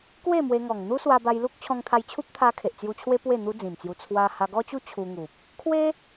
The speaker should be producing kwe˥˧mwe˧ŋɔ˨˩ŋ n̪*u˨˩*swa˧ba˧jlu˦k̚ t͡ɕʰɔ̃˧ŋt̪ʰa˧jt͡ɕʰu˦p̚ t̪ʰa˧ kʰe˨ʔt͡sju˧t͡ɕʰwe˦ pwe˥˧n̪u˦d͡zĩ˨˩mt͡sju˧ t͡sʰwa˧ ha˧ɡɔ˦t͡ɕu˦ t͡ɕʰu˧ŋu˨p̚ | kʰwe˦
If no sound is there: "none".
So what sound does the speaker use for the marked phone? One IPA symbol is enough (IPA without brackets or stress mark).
u˦